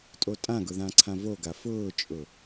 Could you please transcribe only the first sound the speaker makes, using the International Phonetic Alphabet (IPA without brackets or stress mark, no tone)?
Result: tʼ